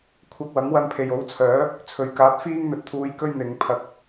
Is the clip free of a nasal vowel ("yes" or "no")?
yes